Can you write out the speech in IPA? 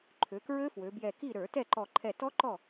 ǃʰ ø˩˧ k ɹ ø˦˥ f w ø˩˧ b j ɛ˧˩ k i˥˨ ɾ ə˞˧˩˧ t ɛ˥˨ ǃ ɔ˧˩ ǃʰ ɛ˧˩ t ɔ˦˥ ǃ ɔ˥˨

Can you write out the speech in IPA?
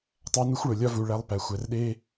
tˤ æ˦ n u˦ xʷ ɭ o˨ lʲ ɒ˦ v u˨ ɭ æ˦ lˠ p æ˨ xʷ æ˨ r ɗ e˦

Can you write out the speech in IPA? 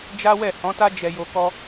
d͡ʒ a˦ w ɛ˦˨ h ɔ̃˨˦ t a˦ d͡ʒ ɛ˧ j o˧ k ɔ˦

